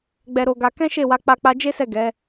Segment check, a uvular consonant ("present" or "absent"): absent